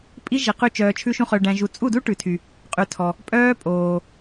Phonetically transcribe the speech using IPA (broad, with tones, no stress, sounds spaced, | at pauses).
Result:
pʼ i˦ ʒ i˨ q ʉ˧ t͡ʃ œː˨ t͡ʃʰ ʉ˧ ʃ ũ˧ χ œ˨ ɖ æ̃˨ ʒ u˨ t͡sʼ u˦˨ d u˦ ʈ ʉ˨ tʰ y˨ | qʼ ʉ˨ tʰ ɔ˨ | pʼ œː˦ pʼ oː˨